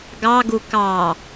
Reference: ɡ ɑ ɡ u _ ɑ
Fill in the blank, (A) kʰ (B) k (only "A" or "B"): B